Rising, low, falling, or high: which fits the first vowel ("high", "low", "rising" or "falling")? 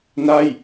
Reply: falling